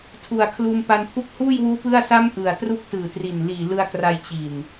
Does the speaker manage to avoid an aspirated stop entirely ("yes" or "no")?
no